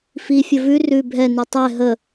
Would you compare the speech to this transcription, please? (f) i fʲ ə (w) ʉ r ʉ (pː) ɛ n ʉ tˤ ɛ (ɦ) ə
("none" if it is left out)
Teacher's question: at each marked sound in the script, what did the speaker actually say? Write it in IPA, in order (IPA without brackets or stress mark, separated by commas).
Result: f, v, bʱ, ɦ